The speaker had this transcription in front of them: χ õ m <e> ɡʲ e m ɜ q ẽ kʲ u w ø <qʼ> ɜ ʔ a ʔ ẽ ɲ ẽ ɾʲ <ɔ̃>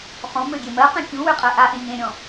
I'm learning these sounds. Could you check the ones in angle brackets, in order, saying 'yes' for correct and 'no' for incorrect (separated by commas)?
no, yes, yes